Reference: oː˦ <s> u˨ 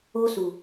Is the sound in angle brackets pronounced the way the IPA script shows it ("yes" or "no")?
yes